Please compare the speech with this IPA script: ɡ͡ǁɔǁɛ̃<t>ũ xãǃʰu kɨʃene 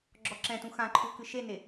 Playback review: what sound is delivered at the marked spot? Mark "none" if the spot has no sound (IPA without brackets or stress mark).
t